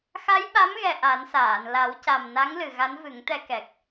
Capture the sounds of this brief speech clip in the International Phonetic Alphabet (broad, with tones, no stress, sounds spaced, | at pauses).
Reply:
x a˧˥ j ɓ a˧˥ m ɣ ɛ˨˩ ʔ a˨˩˦ n s aː˨˩˨ n l a˨˩˦ w c a˨˩ m n a˧˥ ŋ l ɨ˨˩ ɣ a˧˥ n v ɨ˨˩˦ ŋ t̪ ɛ˧ k ɛ˨˩ k̚